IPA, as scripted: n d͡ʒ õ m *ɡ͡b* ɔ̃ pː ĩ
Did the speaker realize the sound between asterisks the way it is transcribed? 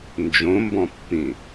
no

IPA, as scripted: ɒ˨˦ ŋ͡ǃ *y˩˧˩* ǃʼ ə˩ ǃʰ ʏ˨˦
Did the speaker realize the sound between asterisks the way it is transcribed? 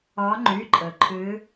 yes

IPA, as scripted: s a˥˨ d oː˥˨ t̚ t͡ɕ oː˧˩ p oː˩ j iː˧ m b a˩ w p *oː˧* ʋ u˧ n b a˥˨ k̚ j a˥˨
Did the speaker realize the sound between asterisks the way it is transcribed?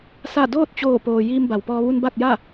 no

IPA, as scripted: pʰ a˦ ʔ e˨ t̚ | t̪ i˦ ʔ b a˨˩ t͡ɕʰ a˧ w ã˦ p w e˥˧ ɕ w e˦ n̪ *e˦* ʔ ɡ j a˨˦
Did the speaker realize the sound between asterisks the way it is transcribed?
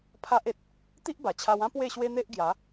yes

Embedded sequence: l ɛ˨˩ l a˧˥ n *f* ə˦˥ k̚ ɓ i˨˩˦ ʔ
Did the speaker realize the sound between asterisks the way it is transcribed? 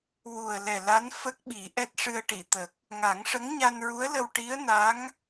yes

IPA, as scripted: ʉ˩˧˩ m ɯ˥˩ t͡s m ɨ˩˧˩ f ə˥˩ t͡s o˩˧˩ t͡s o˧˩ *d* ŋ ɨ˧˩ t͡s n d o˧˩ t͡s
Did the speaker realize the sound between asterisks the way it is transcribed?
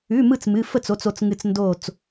no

